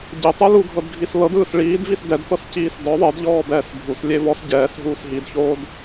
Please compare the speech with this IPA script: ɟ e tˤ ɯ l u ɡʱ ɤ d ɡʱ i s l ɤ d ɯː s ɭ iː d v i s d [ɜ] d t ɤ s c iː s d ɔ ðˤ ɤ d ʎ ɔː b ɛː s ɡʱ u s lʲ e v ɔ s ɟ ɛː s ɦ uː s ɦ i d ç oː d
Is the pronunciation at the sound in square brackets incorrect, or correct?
incorrect